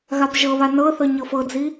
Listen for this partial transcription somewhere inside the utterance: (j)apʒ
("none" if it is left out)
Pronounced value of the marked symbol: ɣ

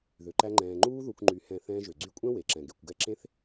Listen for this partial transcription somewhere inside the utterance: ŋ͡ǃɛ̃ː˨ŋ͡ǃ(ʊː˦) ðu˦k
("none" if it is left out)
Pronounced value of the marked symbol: uː˦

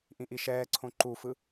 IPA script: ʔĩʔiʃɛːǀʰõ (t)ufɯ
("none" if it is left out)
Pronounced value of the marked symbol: ǃ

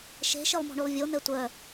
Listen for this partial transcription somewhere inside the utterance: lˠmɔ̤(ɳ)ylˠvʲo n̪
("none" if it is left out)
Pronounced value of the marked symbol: ɳ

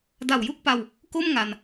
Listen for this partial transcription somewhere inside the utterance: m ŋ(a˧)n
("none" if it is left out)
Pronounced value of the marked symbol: a˧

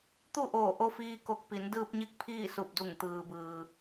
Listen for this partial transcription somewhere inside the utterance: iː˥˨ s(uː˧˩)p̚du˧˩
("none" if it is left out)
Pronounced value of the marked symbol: u˧˩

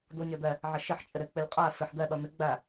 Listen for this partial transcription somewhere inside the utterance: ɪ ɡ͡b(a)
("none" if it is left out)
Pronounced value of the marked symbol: æ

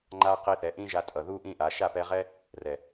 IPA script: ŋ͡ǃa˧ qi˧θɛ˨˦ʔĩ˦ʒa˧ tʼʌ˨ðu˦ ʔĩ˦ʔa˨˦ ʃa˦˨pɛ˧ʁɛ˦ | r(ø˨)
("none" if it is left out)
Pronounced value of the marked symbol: ɛ˨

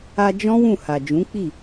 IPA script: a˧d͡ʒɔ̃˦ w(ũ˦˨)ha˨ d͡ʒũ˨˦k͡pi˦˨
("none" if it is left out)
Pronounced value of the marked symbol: ũ˦˨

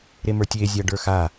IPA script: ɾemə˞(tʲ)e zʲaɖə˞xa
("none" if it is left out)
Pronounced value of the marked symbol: tʲ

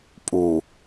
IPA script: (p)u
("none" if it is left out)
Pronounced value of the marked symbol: pʼ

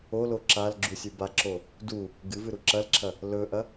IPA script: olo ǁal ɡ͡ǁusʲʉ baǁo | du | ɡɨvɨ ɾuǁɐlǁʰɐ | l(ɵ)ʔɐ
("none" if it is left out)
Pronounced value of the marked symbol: ɵ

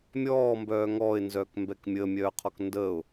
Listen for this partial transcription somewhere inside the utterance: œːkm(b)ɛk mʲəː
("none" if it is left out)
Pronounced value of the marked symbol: b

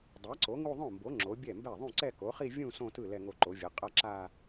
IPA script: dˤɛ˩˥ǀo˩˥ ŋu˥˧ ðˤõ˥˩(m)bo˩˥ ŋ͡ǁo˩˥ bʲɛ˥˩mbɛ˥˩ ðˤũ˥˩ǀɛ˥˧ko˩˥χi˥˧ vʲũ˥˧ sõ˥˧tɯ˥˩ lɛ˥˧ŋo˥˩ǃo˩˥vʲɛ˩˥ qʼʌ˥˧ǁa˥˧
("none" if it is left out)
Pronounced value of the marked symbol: m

